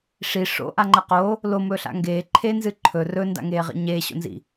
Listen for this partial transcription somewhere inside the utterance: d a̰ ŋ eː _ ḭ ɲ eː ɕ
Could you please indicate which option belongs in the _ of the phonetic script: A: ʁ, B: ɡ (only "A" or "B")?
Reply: A